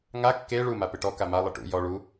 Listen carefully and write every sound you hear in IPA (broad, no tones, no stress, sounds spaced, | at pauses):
ŋ a kː e ɭ u m a p ɪ ʈ ɔ k a m a lˠ ɪ ʈ ṵ j ɔ ɭ u